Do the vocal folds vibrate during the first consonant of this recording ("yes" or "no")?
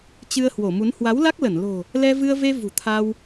no